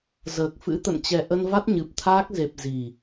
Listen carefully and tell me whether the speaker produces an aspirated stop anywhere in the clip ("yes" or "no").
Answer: yes